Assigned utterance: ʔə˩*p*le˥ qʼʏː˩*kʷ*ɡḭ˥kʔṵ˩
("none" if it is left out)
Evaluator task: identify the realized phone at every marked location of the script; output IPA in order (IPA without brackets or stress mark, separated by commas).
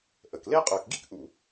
k, k